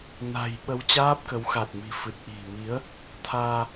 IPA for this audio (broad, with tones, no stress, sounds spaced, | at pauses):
n a̤˨˩ j ɓ ə˨˦ w t͡ɕ aː˦˥ p̚ k ə˨˦ w x a˨˩ t̚ m i̤˨˩ f ɨ˨˩ t̚ ʔ i̤˨˩ m i˨˦ ə̯ | t̪ʰ aː˧